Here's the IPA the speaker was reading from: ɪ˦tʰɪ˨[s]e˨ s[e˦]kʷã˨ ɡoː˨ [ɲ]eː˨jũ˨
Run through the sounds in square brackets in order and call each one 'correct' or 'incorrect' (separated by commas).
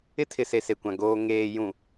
correct, incorrect, incorrect